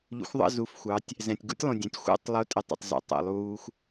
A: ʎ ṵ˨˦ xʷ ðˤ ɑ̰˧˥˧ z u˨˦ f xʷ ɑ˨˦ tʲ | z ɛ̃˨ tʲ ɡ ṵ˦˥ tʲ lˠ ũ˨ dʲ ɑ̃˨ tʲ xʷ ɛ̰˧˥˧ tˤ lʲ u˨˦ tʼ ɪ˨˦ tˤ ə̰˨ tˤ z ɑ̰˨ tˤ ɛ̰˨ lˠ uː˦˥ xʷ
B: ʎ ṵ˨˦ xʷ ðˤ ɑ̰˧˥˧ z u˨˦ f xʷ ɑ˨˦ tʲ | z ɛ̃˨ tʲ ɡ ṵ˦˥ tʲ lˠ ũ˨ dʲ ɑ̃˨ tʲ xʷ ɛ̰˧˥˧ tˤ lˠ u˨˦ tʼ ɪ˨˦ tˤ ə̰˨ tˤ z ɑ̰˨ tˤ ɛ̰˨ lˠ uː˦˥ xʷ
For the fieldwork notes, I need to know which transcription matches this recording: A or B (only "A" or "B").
B